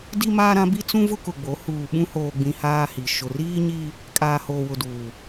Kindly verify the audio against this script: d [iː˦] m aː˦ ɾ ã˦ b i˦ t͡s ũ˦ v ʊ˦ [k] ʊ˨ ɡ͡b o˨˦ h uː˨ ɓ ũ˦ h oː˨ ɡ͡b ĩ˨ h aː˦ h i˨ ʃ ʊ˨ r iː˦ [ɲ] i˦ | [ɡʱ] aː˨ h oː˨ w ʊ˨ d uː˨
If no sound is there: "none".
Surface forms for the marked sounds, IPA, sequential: i˦, k, ɲ, kʼ

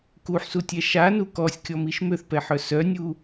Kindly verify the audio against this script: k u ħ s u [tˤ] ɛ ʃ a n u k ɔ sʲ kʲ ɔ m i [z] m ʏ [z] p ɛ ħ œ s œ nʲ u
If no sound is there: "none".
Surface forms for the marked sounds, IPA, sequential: tʲ, ʃ, θ

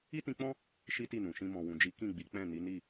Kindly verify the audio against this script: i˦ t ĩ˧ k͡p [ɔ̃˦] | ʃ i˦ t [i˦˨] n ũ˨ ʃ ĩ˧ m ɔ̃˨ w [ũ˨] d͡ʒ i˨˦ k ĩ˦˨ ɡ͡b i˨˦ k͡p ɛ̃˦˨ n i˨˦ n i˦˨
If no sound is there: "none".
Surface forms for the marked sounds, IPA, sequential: ɔ̃˦, i˦˨, ũ˨

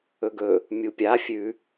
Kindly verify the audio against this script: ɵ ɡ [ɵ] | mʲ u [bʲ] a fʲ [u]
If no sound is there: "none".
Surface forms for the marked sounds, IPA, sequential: ɵ, pʲ, ʉ

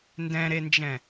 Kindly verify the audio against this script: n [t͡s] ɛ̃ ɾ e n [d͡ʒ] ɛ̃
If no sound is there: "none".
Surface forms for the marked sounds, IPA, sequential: d, d͡ʒ

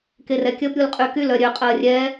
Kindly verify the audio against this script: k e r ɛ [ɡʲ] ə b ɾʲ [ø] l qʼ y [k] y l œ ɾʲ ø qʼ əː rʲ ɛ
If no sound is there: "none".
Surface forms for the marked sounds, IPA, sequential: kʲ, u, k

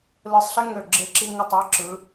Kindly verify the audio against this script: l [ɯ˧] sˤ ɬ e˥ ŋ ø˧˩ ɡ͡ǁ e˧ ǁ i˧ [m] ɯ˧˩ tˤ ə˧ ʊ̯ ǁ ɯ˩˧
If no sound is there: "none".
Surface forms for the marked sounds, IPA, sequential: ɯ˧˩, ŋ

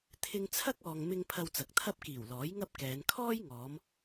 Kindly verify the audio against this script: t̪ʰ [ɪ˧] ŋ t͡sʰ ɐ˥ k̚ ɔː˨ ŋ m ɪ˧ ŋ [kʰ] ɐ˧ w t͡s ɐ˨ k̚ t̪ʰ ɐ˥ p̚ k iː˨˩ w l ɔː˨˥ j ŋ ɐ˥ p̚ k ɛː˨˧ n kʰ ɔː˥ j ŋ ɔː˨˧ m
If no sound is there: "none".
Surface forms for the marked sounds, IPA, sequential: ɪ˧, pʰ

